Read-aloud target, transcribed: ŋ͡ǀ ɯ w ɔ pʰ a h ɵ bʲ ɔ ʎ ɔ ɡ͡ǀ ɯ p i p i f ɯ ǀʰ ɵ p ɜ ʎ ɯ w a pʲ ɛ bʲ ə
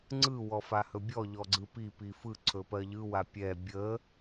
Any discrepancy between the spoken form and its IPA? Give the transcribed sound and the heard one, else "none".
pʰ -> f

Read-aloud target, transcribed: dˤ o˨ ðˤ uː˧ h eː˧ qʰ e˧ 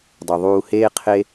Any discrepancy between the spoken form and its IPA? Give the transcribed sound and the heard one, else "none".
none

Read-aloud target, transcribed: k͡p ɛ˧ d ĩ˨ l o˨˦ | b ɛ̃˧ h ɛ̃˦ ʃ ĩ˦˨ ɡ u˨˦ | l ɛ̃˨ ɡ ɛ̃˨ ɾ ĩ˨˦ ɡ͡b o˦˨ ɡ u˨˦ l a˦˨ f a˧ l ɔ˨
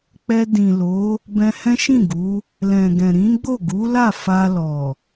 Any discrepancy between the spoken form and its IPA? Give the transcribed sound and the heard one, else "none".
none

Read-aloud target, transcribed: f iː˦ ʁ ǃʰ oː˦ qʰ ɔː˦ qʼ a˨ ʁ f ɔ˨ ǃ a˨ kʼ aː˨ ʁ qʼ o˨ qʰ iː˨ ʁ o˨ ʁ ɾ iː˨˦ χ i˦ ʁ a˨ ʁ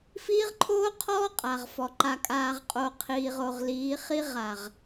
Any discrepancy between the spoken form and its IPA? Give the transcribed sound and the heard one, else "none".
ɾ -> l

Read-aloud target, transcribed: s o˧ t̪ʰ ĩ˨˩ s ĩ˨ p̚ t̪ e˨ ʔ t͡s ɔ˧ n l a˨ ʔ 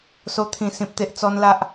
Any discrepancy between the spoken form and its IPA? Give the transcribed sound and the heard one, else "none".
none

